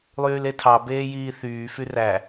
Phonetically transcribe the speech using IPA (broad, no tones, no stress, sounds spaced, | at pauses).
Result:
lˠ yː l e tʰ ɑ b eː j iː θ yː f y r æ